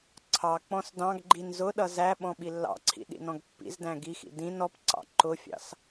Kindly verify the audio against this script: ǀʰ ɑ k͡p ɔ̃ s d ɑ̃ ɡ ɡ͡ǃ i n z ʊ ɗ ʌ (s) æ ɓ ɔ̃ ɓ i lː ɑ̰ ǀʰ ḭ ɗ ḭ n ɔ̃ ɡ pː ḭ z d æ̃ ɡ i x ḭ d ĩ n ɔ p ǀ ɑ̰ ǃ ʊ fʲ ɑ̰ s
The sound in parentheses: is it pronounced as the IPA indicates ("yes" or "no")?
no